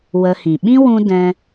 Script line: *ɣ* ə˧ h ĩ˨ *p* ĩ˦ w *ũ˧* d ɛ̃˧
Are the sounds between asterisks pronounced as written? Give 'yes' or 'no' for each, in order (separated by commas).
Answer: no, no, yes